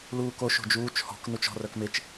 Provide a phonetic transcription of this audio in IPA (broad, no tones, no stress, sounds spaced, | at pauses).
l uː k o ʃ o̤ d͡ʒ uː t͡ʃ h ɔ̤ k n u t͡ʃ ɔ̤ r œ k m ɪ t͡ʃ